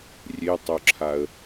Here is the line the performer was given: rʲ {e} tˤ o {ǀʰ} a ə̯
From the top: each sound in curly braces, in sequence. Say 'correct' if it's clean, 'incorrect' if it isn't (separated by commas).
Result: correct, incorrect